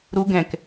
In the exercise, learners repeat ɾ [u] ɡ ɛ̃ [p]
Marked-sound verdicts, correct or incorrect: correct, incorrect

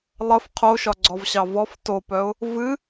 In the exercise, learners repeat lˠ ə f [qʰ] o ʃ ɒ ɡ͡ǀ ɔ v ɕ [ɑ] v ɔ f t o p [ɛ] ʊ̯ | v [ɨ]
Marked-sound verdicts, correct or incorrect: correct, correct, incorrect, correct

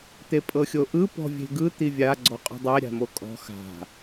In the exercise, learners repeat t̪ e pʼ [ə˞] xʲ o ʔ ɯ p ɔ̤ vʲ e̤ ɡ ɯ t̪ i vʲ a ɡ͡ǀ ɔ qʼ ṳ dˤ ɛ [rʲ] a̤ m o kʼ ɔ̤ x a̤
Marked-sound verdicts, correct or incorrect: incorrect, incorrect

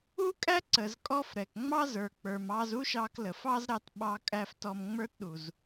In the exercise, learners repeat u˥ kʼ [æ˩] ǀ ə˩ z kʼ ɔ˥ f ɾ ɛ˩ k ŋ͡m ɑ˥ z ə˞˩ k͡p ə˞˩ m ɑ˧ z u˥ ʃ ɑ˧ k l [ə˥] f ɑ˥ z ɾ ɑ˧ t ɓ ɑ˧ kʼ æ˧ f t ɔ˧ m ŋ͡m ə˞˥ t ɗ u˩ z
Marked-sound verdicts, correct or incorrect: incorrect, incorrect

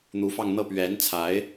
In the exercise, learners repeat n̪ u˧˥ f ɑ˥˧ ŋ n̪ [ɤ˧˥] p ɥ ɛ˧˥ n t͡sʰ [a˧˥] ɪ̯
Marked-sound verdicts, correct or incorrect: incorrect, correct

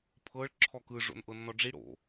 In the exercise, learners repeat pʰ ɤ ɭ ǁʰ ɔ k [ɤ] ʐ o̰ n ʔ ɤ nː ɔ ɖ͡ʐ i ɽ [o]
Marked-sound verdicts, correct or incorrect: incorrect, incorrect

